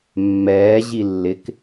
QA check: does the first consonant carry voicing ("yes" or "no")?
yes